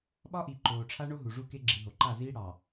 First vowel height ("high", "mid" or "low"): low